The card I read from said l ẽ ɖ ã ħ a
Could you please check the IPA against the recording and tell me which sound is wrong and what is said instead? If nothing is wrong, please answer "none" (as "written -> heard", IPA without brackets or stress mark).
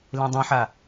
ɖ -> dˤ